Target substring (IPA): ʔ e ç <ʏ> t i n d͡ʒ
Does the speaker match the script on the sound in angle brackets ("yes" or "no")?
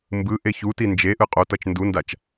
no